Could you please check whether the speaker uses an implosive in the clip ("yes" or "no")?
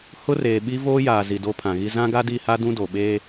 yes